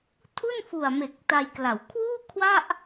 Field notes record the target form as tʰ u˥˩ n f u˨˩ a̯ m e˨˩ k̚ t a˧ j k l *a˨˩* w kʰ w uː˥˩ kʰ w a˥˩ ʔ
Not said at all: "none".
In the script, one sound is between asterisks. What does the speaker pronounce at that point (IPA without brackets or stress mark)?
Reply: a˩˦